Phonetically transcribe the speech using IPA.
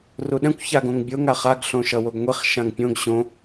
r u ɗ ɛ̃ kʷ ç a ɡ õ ŋ bʲ o ŋ a χ a ɡ ɬ õ ʃ ʌ w o ɡ ŋʷ i χ ʃ ã ŋ pʲ õ ɡ ɕ õ

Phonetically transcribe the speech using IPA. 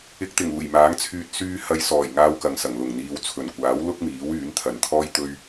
ɪ˨ k̚ t̪ ɪ˨˩ ŋ uː˨˩ j m aː˨˥ ŋ t͡sʰ yː˧ t̚ s yː˧ h ɐ˨˧ j s ɔː˨˩ j ŋ aː˧ w k ɐ˨ ŋ s ɐ˨˩ ŋ l ʊ˨˩ ŋ n̪ iː˨ w t͡sʰ ɵ˨˩ n kʷ aː˨˥ w l ʊ˥ k̚ m iː˨˥ w yː˨˥ n t̪ʰ ɐ˨˧ n t̪ʰ ɔː˥ j t̪ ɵ˥ ɥ

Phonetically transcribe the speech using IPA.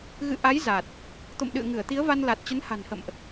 ɣ ɨ̰˧˨ ʔ a˨˦ j z a˨˩ t̚ | t̪ o̰˧˨ m ɗ ɨ̰˧˨ ə̯ ŋ ɨ˧˩ ə̯ t̪ i˨˦ ə̯ v a˧ n l a˨˩ t̚ t͡ɕ ə˨˦ n h a̤˨˩ n h ə̰˧˨ m ʔ

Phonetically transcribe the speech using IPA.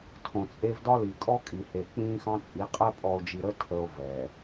tʰ õ˨ t͡sʼ e˦ v d ɒ˦ l i˨ kʼ ɔ˦ kʼ i˨ h e˨ k͡p ĩː˦ x ɑ̃˦ t͡sʼ i˨˦ qʼ ɛ˦ pʼ ɔ˨ o̯ d͡ʒ i˨ ɾ ə˦ tʰ ə˨ o̯ v ɛ˨

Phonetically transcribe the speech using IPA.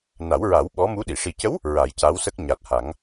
n a˨˩˦ w ɹ a˨˩˦ w ɓ ɔ˧˥ m u˧˥ ɗ i˨˩˨ ʂ i˨˩ c ə˧˥ w | ɹ a˨˩˦ j c a˧˥ w s ə˦˥ k̚ ɲ a˨˩ t̚ h a˨˩˦ ŋ

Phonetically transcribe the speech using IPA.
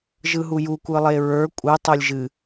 ʒ ɯ ɦ u j u kʷ ɨ lˠ e ɹ ə˞ kʷʼ ɨ tˤ o lʲ ʒ ɨ

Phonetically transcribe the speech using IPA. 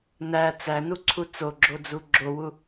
n æ t͡s æ n u ǀʰ u t͡s o ɡ͡ǁ o d͡z u ɡ͡ǁ o w u

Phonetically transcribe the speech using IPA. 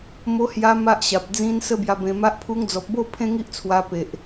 m o˧ h j a˧ m a˦ ʔ ɕ a˨ p̚ d͡z ĩ˧ n s ə˦ b j a˧ b ẽ˧ m a˦ ʔ pʰ u˧ ŋ d͡z ɔ˨ p̚ b o˥˧ pʰ ẽ˦ ŋ i˦ ʔ t͡sʰ w a˧ p e˨ ʔ

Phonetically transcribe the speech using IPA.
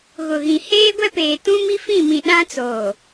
ɣ ʊ˨ ɣ ĩ˨ h eː˦ ɡʷ ɛ˦ p eː˨ t ũ˦ m i˦ f ĩ˦˨ m ĩ˨ ɗ ã˦ t͡s oː˨

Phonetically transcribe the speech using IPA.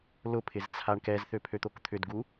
l ʊ pʰ ɪ z t͡sʰ a ɳ k ɛ z θ ø pʰ ø t̪ o k t̪ʰ ʏ d ɡ u

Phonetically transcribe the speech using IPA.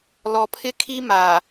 l ɔ˨ pʰ ɪ˦ kʰ i˦ m a˨

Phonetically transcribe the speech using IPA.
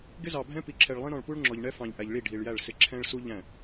ɡ ɪ˦ z ɑ˨ bʱ ɛ̃˦ p i˨ ǁʰ ɛ˨ ɭ lˠ ĩ˦ ɾ ɔ̃˨ ɭ p u˦ ɭ ŋ͡ǁ ɔ˨ ʎ ɳ ɛ˦ f ɑ̃˨ ʎ ʔ æ˨ ʎ ɭ i˦˨ ɖʱ i˨ ɭ j æ˦˨ ɭ s ɪ˦ ǁʰ ɛ̃˦ ɭ s u˦ ʎ æ̃˦˨

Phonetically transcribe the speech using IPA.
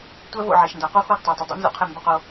tʷ æ˦ v o̰˦˨ ʕ e˨ ʃ n d a˨ q u˦ x o˦˨ ɡ tˤ æ˨ tˤ ə˨ dˤ ṵ˦ n z ṵ˦ qʰ e˦˨ m b ə˦ q o˦

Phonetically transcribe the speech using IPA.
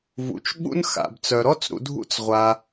v ṵ˩ t͡ʃ ɓ ṵ˥ n x a̰˩ b t͡s œ˩ ɾ ɔ˥ t͡s ɾ ṵ˨ dʱ ṵ˦ t͡s ʁʷ a˩

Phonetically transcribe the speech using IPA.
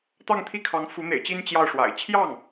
t̪ ɑ˥˧ ŋ t̪ʰ i˥˩ kʰ ɑ˧˥ ŋ f u˧˥ n̪ ḛ˨˩ ɪ̯ t͡ɕ i˥ n t͡ɕ j ɑ˥˩ ʊ̯ ʂ w a̰˨˩ ɪ̯ t͡ɕʰ j ɑ˥˩ ŋ

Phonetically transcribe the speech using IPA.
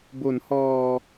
b o˩˦ n h ɔː˨˩

